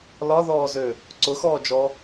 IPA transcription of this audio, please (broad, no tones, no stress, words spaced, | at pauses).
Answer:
lɒðɔːzø | ǀʊxɔːd͡ʒɔ